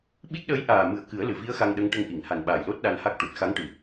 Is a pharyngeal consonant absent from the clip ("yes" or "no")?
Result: yes